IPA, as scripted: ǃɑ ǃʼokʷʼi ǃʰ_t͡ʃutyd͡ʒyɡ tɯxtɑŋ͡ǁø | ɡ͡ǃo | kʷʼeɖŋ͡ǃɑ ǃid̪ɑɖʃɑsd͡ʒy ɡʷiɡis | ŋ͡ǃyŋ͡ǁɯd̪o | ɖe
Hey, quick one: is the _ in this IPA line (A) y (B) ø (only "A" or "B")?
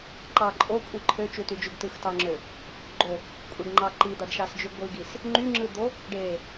B